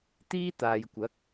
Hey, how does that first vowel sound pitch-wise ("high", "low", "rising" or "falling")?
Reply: high